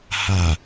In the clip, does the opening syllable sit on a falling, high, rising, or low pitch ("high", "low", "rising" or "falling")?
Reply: low